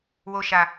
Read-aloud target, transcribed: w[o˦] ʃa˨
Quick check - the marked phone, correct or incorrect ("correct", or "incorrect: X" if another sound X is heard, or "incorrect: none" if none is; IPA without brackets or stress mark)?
incorrect: o˨